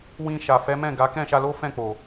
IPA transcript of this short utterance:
w ĩ˧ ʃ a˨ f ɛ˨˦ m ɛ̃˦˨ ɡ a˨˦ k ɛ̃˦˨ ʃ a˧ l o˦ f ɛ̃˦˨ k͡p o˨

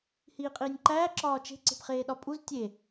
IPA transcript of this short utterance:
h iː qʼ iː nʲ ǃ æː ǁ ɒː t͡ʃ e̤ ǀ e̤ p χ eː ɗ ɒ pʼ u z tʲ e

